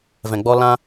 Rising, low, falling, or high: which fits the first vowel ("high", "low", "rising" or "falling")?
low